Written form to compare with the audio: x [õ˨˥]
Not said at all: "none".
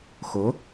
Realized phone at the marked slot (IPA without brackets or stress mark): o˨˥